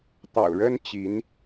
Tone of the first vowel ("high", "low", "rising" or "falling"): low